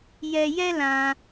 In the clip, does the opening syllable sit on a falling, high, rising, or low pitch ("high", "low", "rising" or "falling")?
high